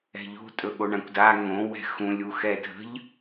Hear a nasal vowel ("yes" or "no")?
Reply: yes